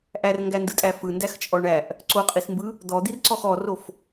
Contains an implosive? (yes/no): no